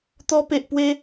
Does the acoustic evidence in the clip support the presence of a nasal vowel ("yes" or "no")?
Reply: no